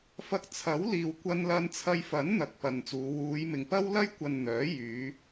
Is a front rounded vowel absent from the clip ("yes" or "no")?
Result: no